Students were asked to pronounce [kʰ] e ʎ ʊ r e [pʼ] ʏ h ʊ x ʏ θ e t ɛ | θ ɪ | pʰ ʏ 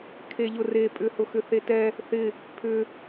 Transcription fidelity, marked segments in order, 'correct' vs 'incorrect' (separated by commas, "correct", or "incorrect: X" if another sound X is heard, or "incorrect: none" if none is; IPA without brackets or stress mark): correct, correct